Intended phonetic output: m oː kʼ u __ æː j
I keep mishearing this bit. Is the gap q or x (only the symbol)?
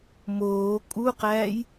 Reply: q